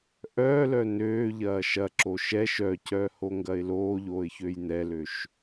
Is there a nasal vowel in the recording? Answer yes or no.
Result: no